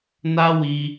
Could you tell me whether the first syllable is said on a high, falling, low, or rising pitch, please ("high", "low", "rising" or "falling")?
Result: high